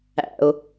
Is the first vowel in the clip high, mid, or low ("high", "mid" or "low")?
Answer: low